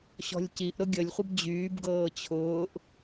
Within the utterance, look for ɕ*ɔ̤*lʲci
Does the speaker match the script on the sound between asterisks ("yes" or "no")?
yes